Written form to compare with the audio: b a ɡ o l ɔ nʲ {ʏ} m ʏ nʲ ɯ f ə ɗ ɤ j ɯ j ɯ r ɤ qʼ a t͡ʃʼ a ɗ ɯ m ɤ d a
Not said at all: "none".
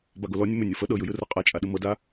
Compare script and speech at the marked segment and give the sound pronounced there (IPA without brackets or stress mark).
ə